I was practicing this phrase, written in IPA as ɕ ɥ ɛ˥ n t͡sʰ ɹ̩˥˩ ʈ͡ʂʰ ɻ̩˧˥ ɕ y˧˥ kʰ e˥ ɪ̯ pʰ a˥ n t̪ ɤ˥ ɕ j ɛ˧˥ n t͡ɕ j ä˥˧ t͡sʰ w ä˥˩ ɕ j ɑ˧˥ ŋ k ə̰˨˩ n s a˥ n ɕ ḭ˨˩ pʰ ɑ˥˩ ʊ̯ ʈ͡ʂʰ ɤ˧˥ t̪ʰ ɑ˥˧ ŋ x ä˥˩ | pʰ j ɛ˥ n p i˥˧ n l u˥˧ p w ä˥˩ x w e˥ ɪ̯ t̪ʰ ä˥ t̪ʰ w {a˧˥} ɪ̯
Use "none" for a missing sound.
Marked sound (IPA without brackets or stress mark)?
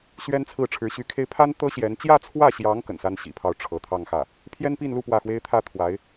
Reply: a˧˥